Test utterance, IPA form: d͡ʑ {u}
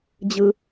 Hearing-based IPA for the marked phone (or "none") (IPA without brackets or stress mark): ɯ